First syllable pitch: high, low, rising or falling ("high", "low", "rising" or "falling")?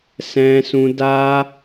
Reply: high